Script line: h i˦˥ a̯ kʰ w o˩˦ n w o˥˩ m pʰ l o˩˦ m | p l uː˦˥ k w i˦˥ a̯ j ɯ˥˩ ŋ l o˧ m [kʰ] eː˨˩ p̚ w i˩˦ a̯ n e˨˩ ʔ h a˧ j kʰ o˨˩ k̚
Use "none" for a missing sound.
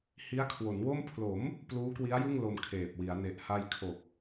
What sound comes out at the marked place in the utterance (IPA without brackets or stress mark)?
kʰ